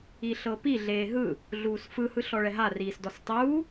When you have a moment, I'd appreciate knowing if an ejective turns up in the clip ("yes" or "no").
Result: no